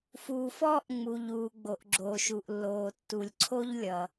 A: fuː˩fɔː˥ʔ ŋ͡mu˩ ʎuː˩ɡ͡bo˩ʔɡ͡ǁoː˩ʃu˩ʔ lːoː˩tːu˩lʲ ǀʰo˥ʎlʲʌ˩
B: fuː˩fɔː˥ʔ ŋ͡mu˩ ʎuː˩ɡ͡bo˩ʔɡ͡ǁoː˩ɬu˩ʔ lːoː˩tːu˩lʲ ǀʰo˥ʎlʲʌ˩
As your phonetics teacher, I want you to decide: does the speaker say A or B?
A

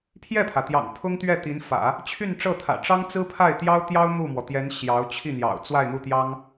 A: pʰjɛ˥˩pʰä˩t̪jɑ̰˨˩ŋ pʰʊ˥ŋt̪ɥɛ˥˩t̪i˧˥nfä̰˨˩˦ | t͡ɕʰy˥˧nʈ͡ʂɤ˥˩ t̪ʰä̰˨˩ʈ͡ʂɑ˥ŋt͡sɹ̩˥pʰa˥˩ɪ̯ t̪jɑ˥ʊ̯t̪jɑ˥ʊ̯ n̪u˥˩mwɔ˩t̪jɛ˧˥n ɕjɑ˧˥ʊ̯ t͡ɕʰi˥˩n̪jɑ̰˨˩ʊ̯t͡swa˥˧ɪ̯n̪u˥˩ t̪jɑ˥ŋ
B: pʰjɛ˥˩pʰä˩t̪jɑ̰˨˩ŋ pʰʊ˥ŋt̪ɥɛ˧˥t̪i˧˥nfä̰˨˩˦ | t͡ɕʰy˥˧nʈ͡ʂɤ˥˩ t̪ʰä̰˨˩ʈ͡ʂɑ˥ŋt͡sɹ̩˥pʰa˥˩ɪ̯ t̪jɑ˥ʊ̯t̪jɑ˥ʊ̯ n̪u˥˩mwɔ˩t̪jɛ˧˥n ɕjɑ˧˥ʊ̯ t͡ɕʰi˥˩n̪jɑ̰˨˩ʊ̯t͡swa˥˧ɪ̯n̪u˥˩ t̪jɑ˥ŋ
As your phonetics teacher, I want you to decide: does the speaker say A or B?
A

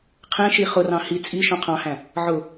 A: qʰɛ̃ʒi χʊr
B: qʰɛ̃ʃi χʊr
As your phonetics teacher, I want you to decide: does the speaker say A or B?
B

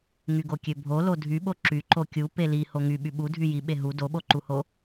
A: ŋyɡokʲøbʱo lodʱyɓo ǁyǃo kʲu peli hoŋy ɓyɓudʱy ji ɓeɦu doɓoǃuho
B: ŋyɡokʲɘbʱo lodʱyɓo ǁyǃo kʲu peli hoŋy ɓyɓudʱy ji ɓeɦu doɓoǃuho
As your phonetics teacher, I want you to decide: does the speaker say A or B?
A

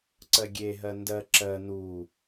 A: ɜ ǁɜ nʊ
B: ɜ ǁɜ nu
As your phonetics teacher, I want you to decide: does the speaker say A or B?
B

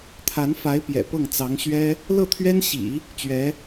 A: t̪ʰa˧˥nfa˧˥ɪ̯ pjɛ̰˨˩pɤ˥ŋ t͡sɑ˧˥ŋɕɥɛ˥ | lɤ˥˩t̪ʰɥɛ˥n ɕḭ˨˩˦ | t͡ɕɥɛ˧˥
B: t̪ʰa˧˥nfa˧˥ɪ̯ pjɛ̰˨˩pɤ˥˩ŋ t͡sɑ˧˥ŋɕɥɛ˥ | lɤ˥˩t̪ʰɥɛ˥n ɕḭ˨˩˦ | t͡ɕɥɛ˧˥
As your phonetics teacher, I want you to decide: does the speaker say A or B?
B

